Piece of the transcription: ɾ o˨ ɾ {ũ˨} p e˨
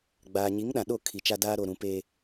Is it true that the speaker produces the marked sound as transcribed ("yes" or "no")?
yes